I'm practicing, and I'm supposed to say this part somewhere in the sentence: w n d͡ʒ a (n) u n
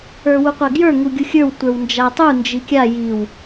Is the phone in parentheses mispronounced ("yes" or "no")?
yes